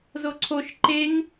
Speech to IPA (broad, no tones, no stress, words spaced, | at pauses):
zoǀʰoʃ ǃeŋ